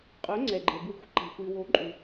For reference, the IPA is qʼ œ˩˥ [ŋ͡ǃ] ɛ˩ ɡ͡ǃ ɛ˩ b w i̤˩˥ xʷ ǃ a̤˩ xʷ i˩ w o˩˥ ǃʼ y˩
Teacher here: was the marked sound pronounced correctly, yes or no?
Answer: no